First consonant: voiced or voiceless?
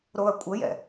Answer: voiced